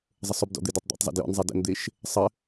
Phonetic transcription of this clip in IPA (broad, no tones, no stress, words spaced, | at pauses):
zˤəsˤɵbdɔ̰ d̪edɔtˤd̪ḛtˤzˤḛ djɔ̰nzˤe də̰nd̪eʃ | sˤə